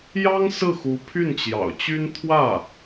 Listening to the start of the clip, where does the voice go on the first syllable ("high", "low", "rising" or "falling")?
high